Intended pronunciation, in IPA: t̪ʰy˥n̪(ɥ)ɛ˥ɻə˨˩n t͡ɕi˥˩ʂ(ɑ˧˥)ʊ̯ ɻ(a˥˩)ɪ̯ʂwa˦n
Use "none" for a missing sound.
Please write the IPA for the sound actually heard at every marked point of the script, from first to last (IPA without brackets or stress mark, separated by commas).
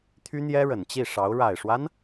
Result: j, ɑ˧˥, a˨˩